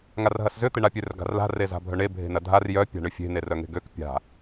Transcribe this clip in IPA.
ŋarɦɐszʏ t̪eɳapʲør ɡa̤rla̤ reza̤bʱœɳe bʱe̤nɐdʱar jœ pʲa̤ɳʏfʲe̤ nerœŋe̤ɡøk pʲa̤

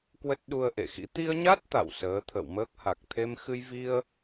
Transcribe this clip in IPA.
kwə˦˥t̚ ɗu˧ə̯ʔḛ˧˨xḭ˧˥ t̪i˧ə̯ɲa˦˥t̚ t̪a̰˧˨w səː˨˦t̪ʰə̰˧˨wməː˦˥k̚ ha˨˩k̚t̪ʰe˧m xɨ˧jvi˧ə̯

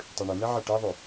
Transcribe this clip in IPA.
tˤʉɳən̪ɛ ʕɛʈɛðˤʉ

